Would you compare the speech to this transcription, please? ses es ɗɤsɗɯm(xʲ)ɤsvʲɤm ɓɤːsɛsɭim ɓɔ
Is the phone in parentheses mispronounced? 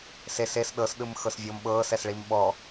yes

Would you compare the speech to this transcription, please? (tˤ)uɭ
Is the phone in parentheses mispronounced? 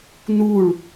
yes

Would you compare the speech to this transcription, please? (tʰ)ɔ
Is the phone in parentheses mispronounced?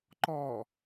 yes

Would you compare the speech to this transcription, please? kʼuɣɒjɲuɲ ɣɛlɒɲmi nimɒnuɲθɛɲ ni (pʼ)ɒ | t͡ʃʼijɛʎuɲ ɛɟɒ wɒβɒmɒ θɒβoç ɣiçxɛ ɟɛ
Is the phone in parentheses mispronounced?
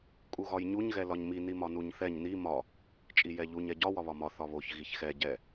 yes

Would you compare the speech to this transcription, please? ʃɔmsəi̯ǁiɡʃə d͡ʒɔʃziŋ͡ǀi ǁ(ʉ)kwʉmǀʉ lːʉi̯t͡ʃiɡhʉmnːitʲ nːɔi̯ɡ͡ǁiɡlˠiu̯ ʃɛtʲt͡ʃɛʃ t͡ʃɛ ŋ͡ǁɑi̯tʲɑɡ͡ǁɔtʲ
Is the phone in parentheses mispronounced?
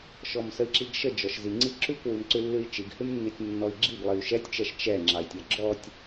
no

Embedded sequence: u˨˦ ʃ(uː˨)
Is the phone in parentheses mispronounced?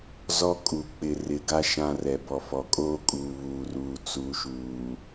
no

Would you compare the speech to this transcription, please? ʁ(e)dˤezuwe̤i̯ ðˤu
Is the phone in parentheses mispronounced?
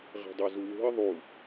yes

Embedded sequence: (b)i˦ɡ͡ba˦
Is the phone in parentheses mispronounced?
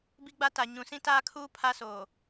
no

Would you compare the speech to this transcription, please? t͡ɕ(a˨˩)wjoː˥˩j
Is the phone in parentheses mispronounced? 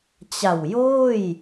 no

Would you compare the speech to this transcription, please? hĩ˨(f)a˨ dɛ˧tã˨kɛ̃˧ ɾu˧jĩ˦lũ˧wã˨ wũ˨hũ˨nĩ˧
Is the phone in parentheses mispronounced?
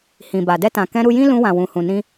yes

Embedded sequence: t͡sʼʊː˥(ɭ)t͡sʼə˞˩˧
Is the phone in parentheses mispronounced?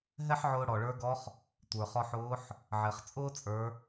yes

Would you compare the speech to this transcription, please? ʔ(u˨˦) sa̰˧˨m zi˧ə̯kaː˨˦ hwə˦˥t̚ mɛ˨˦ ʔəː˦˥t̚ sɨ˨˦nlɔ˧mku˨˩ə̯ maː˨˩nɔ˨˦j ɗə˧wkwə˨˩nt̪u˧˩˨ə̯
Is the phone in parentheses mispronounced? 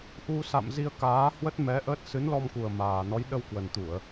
yes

